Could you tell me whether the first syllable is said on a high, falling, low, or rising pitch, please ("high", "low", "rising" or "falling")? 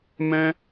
high